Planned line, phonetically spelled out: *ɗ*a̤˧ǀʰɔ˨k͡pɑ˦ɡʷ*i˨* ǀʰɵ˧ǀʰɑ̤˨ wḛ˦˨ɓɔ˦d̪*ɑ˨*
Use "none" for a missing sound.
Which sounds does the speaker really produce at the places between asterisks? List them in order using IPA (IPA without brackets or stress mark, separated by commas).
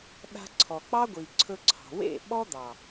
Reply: ɗ, i˨, ɑ˨